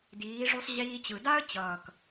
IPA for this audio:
diː˩˧ ʐu˧sˤ ʑiː˧t͡ɕɯ˨˩ da˥ə̯ t͡ɕʌː˨˩k

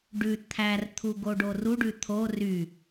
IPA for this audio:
ɖʉ t̪ʰært̪ʰu ɡoɖoruɖʉ t̪ʰo ry

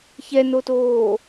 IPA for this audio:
çɛnotoː

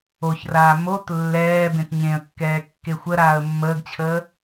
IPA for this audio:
oçraː mot lːɛːbẽt ɲẽə̯kːɛː kːexʷəɾaːə̯ mːəːɡt͡ɕʰəː

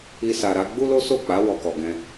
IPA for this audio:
i˧sa˨ɾa˨˦ ɡ͡bu˦lo˦so˦˨k͡pa˨˦ wɔ˧kɔ˨ɡɛ̃˧

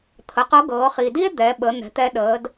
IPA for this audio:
t̪ʰə˩˧qɤ˧˥ɡɤː˩˧ χi˩di˥e̯ d̪ɛ˩˧ɓə˩˧ n̪ɛ̤˩˧t̪ɛ˧ ɗəː˩˧d

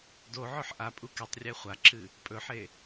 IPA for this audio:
doʕɵħ ʔapʼu ketˤ rʲeχʷaǁɨ | pʼɵħe

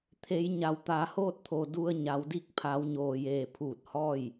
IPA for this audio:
t̪ʰe˩˧j ɲa˩wt̪aː˩˧hoː˥˨t̚t̪ʰo˩ du˧ə̯ ɲa˩˧wdi˥˨k̚ pʰa˩˧wɲoː˩jeː˩pʰuː˧˩t̚ hɔː˥˨j

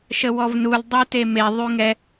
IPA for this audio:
ʃəwɔvnul dˤuteme ðˤyŋɛ

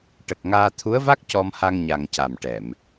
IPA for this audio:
ʈə˨˩k̚ ŋaː˧ t̪ʰu˧˥ə̯va˦˥k̚ cɔ˧mha˧ŋ ɲa˨˩ŋ ca˨˩m ʈɛ˨˩˨m

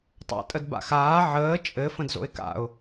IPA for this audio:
tˤa̰tʼəd ba̰xaː ʕəː t͡ʃʼɘ fə̃dzo̰ɪ̯ka̰ʊ̯

